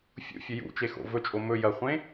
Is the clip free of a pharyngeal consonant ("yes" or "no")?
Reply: yes